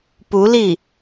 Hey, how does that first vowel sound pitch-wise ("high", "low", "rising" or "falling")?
rising